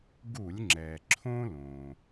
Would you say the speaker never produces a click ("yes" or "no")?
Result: no